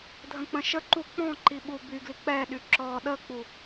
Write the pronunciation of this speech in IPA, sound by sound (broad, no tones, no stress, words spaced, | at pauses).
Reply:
dʱə̃k͡pə̃ʃəǃu k͡pɔ̃ǃi ɓubyɡli k͡pɛɗy ǁɔ ɗək͡pu